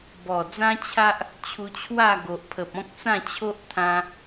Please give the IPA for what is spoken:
bɔ˨˩d͡zã˦t͡ɕʰa˦ʔ | t͡ɕʰu˧t͡ɕʰwa˥˧ɡo˨ʔpʰə˨p̚ ɔ̃˦k̚ t͡sã˥˧t͡ɕʰo˦ʔt̪ʰã˧

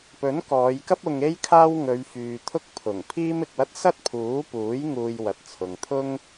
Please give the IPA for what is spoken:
pɵ˨˥nkɔː˨˧jkɐ˥p̚ ʊ˧ŋe˥jkʰaː˥w ŋɵ˨˧ɥfyː˨t̪ʰʊ˥k̚ pʰʊ˨˩ŋ pʰiː˥mɪ˨k̚wɐ˥t̚ sɐ˥t̚pʰuː˨˥ puː˨˥j ŋuː˧jwɐ˨t̚ t͡sʰʊ˨ŋt̪ʰʊ˥ŋ

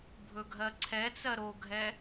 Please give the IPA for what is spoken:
bʱɵɡʱɜǀʰɛt͡sɜ ɾoɡʱɛ

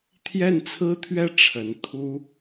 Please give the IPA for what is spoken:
t̪ʰjɛ˥˩nt͡sʰɹ̩˥t̪ʰɥɛ˥˩ ʈ͡ʂʰə˧˥n t̪ʰu˥

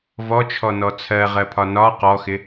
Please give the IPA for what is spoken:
vɔt͡ʃʰɔnɔ t͡sʰɜʁɜpʰɒ nɒ qɔxɪ

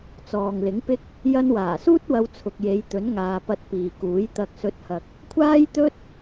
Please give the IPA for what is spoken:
t͡sɔː˨ŋlɪ˨˥ŋpɪ˥k̚ | jɐ˧nwaː˨˩suː˥t̚ wɐ˧wt͡sʰʊ˨k̚je˨˧j t̪ɵ˨˥nŋaː˨pɐ˧t̚ piː˨kuː˨˥j t̪ɐ˧k̚ sɵ˨˥t̚hɐ˨k̚ | kʷʰaː˥jt̪ɵ˥t̚

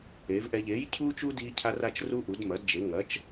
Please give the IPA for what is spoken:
eː˨˥vʔɛ˦ ʎeː˨˥jcʰuː˦t͡ʃu˦ diː˦cʰa˦ra˦t͡ʃru˦ ʔu˨˥dmɐ˨˥dd͡ʒe˨˥ ŋɐ˨˥t͡ʃ

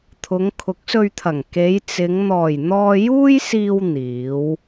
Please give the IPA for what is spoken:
t̪ʰʊ˨˧ŋ kʰʊ˨˥k̚sɵ˧ɥt̪ʰɐ˨˩ŋ ke˨˧jt͡sɪ˨˧ŋ n̪ɔː˨˩jn̪ɔː˧juː˥jsiː˧w n̪iː˨˥w

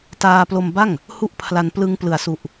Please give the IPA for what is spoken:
taː˧plo˧mba˥˩ŋ | hu˥˩ʔpʰla˧n plɯ˧ŋplɯ˩˦a̯su˨˩ʔ

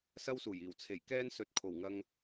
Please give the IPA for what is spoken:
sɐ˥w suː˨˩jiː˨˩w t͡sʰe˨˩jkɛː˥nsɵ˨˥t̚ kʰo˨˩wŋɐ˧ŋ

